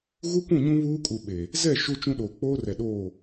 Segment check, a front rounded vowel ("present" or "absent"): absent